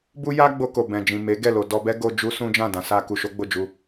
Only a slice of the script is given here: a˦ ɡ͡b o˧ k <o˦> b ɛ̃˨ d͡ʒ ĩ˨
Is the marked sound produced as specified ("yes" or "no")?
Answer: no